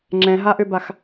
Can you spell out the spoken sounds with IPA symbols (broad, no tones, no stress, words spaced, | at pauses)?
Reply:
ŋ͡ǁɛ̃ɦaʔøbax